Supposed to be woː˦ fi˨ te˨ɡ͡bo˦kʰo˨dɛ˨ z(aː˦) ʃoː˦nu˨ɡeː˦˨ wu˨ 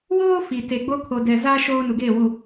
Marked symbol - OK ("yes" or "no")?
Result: yes